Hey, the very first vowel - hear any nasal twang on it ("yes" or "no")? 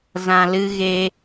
yes